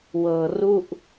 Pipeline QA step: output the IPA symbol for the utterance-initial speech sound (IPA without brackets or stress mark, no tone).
w